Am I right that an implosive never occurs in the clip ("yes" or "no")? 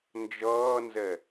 yes